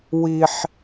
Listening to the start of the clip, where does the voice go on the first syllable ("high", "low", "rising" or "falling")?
high